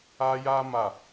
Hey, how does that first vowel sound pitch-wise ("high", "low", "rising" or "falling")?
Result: high